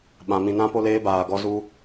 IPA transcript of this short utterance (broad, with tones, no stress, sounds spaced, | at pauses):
ɓ ã˧ m ĩ˧ n ã˦ p o˦ l eː˦ b aː˧ ɡ ɔ˦ z u˧